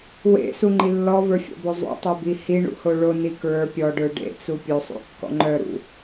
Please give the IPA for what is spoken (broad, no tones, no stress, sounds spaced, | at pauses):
w ḛ s u ŋ͡ǃ i lː ɔ v ə˞ fʲ ɔ̰ b o zˤ ṵ tˤ ə˞ b i h i ɳ ṵ h o ɭ o n i k ɹ ə˞ pʲ ɔ ɖ ə˞ ɖ ḛ t͡s u pʲ o sˤ ṵ kː ɔ̰ ŋ͡ǃ œ ɾ ṵ